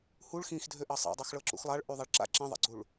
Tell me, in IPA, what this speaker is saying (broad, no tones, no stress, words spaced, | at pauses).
huɭ xĩxdʱøʔɑ sˤḛdˤɑxɭɤ ǁṵxlˠaɭʔy ðˤaɭǁa̰ ǁẽðˤa̰ɡ͡ǀuɭ